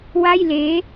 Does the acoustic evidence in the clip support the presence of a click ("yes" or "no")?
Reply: no